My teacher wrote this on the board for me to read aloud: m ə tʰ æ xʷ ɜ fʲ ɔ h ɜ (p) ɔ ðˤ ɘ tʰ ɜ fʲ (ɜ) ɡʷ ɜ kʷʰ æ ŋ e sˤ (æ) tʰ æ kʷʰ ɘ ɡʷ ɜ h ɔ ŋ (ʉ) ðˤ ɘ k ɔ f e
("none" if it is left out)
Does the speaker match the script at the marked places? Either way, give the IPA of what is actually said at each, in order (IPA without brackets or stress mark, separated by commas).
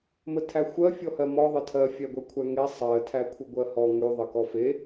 m, æ, ɜ, ʉ